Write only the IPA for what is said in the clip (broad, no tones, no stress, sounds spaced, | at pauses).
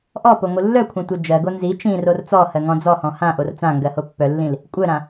ʔ ɔ p o ŋʷ ɯ lː œ kʷʰ ã tʷ œ d͡ʒ ɜ ɡ o n z i t͡ʃ ĩ r o r t͡s ɔ h ɜ ŋ ɔ̃ d͡z ɔ h ɔ̃ h ã ʔ o r t͡s ã ŋ ɡ ɜ h o pː œ lː ĩ l | kʷʼ œ ɾ ã